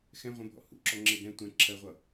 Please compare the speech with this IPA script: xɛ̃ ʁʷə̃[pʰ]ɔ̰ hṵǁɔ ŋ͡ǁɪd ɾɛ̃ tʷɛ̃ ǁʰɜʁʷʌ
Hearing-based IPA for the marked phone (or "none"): bʱ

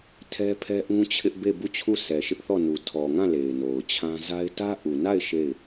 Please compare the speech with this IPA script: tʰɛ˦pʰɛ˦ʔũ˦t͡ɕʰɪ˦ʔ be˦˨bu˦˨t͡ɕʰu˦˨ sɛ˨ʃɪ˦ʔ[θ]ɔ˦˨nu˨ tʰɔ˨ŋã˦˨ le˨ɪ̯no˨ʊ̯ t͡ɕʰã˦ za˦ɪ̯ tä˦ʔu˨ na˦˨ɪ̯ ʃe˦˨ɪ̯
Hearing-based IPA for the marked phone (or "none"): θ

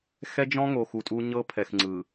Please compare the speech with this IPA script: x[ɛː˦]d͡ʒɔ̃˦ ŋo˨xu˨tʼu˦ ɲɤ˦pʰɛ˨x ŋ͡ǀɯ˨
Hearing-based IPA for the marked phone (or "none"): ɛ˦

